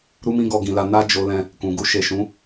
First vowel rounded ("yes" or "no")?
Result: yes